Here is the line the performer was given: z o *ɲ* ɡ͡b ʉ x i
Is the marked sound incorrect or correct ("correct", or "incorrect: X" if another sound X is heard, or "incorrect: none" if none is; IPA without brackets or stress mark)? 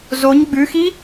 correct